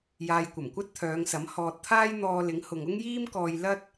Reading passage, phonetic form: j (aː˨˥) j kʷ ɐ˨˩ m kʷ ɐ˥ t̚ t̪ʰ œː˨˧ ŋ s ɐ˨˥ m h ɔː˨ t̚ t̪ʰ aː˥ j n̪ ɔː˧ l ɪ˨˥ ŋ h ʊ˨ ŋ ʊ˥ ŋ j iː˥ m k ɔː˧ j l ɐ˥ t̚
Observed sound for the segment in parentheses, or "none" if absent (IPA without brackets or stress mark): aː˨